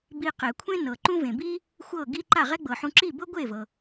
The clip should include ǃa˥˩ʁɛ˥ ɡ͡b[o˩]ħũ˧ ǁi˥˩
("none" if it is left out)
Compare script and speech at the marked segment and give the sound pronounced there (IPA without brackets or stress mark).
ɤ˩